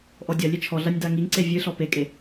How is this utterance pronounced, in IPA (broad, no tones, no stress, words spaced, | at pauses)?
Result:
ʔɔdʲɐlʲe t͡ʃʰɔɮɐnʲ daŋiŋǀe vʲɨɬɔ pekʼe